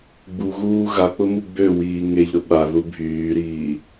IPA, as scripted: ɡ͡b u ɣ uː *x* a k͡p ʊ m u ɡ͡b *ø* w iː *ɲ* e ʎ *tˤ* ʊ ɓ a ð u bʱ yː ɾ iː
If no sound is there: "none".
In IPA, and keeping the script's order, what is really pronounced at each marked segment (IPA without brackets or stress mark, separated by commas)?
ɣ, ø, ŋ, ɾ